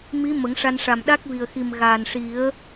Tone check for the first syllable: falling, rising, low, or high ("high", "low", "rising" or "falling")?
rising